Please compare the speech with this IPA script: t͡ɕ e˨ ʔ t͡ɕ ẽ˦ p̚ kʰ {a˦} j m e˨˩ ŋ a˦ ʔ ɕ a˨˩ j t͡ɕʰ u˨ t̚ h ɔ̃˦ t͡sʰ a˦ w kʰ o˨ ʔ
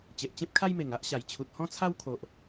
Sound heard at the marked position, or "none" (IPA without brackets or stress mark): a˦